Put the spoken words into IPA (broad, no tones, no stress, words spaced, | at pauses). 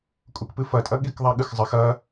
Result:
kʼukpɨfɐtʼɐ ɠikðˤaɠɨxzˤɘx ɐ